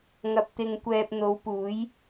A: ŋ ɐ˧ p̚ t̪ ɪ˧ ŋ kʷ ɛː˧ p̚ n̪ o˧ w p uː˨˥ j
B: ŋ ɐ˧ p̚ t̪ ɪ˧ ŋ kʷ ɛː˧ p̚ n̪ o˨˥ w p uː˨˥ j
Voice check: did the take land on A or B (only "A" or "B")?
B